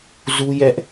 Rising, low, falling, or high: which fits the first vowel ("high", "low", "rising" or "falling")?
high